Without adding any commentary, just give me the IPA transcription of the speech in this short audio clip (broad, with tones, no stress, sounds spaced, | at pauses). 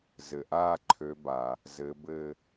z ɘ˩ ʔ aː˥˧ ǃʰ ø˨˦ b a˩ | z ɘ˨˦ b ɘ˥˧